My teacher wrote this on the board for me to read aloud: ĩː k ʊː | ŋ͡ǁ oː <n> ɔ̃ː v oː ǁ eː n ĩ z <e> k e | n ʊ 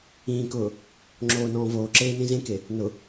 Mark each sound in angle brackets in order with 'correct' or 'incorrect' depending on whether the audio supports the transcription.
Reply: correct, incorrect

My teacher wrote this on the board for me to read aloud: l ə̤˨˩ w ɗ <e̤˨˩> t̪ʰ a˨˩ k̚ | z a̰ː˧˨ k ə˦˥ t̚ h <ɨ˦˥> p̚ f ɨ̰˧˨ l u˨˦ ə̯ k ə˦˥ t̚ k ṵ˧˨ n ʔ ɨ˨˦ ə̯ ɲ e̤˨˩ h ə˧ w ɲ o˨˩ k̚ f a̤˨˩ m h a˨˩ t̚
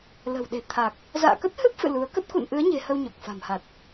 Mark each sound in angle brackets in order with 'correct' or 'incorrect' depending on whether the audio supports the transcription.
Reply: correct, correct

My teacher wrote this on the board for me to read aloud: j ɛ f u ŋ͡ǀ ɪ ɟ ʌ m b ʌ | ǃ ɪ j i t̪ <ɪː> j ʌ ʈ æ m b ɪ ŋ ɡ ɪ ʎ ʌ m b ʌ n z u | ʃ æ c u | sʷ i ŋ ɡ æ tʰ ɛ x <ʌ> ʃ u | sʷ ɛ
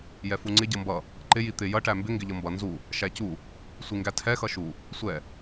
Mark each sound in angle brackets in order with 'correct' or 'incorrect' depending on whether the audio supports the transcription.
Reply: incorrect, correct

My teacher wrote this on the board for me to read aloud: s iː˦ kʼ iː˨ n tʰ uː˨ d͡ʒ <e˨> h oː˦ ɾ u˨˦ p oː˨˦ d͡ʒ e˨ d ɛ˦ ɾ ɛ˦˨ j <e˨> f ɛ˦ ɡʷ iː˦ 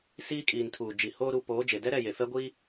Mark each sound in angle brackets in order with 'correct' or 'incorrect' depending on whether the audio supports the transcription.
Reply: incorrect, correct

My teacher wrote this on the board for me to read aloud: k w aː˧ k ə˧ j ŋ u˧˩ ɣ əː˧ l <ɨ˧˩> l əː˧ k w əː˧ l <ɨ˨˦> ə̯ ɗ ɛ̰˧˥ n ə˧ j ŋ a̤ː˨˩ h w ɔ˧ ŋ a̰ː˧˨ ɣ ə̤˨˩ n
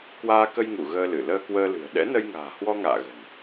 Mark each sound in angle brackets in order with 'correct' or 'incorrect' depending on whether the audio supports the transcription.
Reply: correct, incorrect

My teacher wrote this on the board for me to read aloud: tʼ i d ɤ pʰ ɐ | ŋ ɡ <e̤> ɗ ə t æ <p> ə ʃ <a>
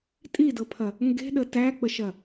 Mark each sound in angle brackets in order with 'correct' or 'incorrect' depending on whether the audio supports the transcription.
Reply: correct, incorrect, incorrect

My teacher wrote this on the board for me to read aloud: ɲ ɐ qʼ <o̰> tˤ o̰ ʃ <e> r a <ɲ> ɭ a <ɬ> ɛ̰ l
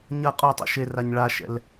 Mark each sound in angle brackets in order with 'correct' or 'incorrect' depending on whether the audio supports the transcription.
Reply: incorrect, correct, correct, incorrect

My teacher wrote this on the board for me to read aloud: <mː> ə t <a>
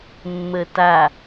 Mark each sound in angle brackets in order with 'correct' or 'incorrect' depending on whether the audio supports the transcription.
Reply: correct, correct

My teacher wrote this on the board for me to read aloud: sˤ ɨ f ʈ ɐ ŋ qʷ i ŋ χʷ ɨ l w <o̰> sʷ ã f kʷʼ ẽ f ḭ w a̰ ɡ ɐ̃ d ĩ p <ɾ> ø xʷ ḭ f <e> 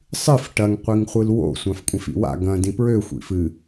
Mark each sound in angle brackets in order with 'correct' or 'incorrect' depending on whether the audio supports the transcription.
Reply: correct, incorrect, incorrect

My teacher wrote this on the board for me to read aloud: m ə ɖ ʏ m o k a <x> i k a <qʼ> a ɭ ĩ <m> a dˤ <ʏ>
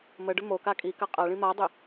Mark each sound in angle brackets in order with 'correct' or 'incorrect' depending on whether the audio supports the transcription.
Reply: incorrect, correct, correct, correct

